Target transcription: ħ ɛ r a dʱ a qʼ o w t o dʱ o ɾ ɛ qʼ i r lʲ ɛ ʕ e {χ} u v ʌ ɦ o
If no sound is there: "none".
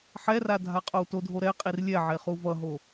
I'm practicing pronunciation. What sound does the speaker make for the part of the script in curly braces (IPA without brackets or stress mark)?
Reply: χ